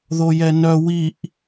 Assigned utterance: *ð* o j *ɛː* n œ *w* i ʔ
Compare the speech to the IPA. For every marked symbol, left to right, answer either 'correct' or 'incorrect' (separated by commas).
correct, incorrect, correct